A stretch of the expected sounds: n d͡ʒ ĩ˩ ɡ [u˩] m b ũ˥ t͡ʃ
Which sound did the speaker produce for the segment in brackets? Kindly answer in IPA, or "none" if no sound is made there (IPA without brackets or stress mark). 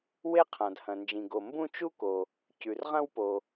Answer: o˩